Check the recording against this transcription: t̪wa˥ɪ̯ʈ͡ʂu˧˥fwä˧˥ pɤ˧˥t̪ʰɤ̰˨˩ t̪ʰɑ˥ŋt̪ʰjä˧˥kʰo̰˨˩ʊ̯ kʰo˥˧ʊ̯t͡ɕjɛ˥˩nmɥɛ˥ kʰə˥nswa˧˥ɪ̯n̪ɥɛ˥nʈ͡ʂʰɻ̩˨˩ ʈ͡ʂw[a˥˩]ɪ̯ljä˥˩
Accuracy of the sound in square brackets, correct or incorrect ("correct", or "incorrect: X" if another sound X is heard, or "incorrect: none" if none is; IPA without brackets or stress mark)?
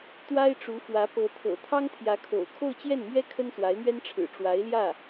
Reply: incorrect: a˧˥